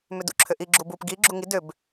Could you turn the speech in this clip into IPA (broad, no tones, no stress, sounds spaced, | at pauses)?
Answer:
m ʏ d ṵ ǁʰ ʏ ʔ i ɡ͡ǁ u b u p ɡ i ɡ͡ǁ u ŋ i d ʏ b